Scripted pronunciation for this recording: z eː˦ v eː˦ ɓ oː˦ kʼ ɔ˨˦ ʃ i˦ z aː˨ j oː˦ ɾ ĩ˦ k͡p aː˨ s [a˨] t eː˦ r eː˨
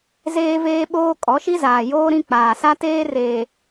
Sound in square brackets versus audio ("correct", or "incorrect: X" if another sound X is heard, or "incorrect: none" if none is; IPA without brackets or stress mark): incorrect: a˦